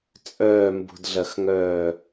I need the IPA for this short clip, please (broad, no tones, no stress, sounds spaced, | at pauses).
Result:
t͡sʼ œː m b ṳ d ɮ ɐ x ŋ œː